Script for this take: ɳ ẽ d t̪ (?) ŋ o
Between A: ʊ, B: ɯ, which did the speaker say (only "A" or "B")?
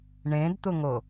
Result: A